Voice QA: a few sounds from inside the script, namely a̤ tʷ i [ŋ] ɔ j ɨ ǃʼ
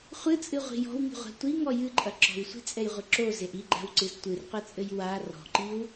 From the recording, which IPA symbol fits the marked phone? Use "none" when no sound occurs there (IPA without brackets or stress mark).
ŋ